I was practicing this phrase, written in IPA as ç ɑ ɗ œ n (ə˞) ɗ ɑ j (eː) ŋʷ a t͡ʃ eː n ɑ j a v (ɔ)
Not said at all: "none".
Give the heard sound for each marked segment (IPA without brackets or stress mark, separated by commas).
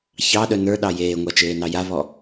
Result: ə˞, eː, ɔ